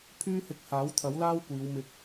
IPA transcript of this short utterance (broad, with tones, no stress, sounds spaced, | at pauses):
pʰ yː˥ h ɪ˧ k̚ h aː˨˥ w t̪ʰ ɐ˨˥ w l aː˥ w kʷ iː˨˧ w m ɪ˧ k̚